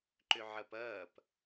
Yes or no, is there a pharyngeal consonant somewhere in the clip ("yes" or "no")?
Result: yes